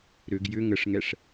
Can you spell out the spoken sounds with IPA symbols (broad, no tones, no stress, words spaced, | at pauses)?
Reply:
ɾʏɡ jʏ ŋəʂŋɛʂ